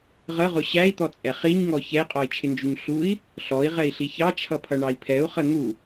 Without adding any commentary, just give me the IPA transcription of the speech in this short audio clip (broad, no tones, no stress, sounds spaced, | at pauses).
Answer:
ʁ ə ʁ ʊ ɕ æ i̯ t̪ ɔ t͡sʼ ɛ χ i ɲ ŋ ɔ ç ɛ i̯ qʼ ɔ i̯ t͡ʃʰ ɪ n d͡ʒ u ɲ ɬ u i̯ | ɬ ɔ i̯ ʁ ɛ i̯ ɬ i ç ɑ t͡ʃʰ ʌ pʰ ʌ ɳ ɑ i̯ pʰ ɛ u̯ χ ə n̪ u